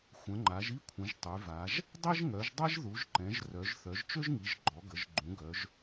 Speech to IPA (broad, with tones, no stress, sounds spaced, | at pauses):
xʷ ə̃˩˧ ŋ͡ǃ a˩˧ ʒ i˥ kʷʰ ə̃˩˧ ʒ tˤ y˩˧ v a˩˧ ʒ | dˤ i˥ ʒ ŋ œ˩˧ ʒ dˤ ɛ˥ ʒ ð u˩˧ ʒ ǃ ɛ̃˩˧ ʒ r œ˩˧ ʒ θ œ˩˧ ʒ t͡ʃ ø˥ ʒ ŋ i˩˧ ʒ ɡ͡ǃ ɔ˩˧ ɡ ə˩˧ ʒ ɡ͡ǃ ũ˩˧ ɡ œ˩˧ ʒ